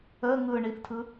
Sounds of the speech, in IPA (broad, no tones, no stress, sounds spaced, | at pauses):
ə ŋ ɯ ɳ i θ tʰ ɯ